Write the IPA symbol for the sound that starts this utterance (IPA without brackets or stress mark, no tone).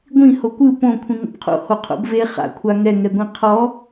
ɡʷ